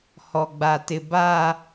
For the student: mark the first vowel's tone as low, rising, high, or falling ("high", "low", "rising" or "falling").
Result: low